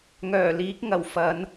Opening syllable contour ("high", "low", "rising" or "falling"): low